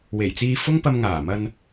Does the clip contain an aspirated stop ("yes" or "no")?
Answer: no